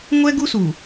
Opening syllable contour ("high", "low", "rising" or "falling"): high